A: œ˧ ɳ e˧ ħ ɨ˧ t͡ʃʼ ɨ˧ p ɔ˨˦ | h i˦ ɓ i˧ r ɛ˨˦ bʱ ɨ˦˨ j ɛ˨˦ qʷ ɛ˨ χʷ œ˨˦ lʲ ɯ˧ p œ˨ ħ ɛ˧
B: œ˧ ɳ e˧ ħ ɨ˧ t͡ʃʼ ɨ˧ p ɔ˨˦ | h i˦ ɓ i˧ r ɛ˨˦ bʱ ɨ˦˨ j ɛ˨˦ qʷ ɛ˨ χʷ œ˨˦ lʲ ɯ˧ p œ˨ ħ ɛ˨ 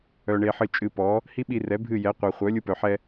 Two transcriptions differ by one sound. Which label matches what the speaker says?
A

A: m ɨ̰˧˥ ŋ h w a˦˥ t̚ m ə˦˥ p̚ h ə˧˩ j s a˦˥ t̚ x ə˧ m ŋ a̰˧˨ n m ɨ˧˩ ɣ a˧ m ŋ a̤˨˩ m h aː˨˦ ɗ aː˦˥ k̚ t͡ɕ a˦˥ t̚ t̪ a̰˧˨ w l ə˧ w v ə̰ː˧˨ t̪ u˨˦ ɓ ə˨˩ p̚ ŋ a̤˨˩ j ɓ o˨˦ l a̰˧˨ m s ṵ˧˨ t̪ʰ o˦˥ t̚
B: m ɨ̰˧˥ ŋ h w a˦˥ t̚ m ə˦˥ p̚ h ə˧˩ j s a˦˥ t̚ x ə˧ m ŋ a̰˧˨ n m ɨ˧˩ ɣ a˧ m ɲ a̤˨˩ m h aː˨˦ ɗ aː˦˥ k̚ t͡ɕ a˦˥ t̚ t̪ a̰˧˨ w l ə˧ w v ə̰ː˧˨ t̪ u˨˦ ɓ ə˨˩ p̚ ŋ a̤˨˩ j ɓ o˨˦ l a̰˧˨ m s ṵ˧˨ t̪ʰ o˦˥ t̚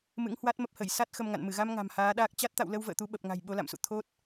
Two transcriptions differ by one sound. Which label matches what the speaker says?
A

